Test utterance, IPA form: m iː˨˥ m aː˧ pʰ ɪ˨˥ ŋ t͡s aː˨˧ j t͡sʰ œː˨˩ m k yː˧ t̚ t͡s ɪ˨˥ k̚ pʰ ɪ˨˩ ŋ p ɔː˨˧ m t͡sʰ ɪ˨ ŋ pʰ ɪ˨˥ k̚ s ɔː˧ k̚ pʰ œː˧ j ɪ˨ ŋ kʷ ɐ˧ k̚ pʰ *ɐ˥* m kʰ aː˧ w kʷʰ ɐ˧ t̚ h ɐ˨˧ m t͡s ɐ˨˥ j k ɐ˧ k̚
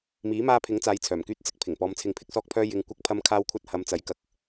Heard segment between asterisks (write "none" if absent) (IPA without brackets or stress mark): ɐ˧